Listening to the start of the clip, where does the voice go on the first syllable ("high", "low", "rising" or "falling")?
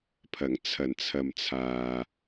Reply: low